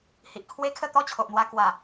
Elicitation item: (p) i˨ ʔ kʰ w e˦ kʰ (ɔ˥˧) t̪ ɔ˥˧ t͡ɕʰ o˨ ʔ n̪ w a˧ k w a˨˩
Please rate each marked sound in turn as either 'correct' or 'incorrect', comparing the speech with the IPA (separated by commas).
incorrect, incorrect